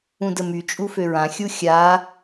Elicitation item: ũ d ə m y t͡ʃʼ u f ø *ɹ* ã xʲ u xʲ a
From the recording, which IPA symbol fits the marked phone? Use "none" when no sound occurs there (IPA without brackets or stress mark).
ɹ